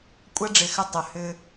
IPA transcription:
kʷʼ ɐ˦ ɖ͡ʐ ɪ˨ x ʏ˦˨ tˤ ø˨ h ʏ˦

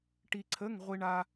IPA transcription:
ʈ i˧ ǀʰ ə˧˥˧ ŋ ʁʷ i˧ ɳ a˧

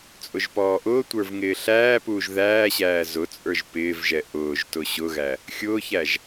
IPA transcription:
t͡sʼ ʊ ʒ p ɔː ʔ ʊː tʷ ə˞ v ŋ ɪː ɬ æː p uː ʒ ð æː ɕ æː z ʊ t͡sʼ ə˞ ʒ p ɪː v ʒ ɛ ʔ ʊː ʒ t ʊ ɕ ʊ ɣ æ | xʲ ʊː ç æ ʒ

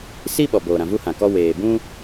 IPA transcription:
s i˦ ɓ ɔ˨ b oː˨ ɾ ã˨ v u˦ h ã˨ k ɔ˦ w eː˨ b ũ˦

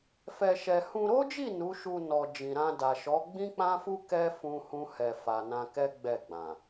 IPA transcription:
f ɛ˧ ʃ ɛ˧ h ũ˧ ɾ o˦ d͡ʒ i˦˨ n u˨˦ ʃ u˧ n ɔ˨ d͡ʒ ĩ˨ ɾ ã˧ d a˨ ʃ ɔ˨˦ ɡ͡b ĩ˦ k͡p ã˦ f u˦ k ɛ˦ f ũ˦ h ũ˦ h ɛ˧ f a˨ n ã˧ k ɛ˦ ɡ͡b ɛ˦˨ ɡ͡b ã˨

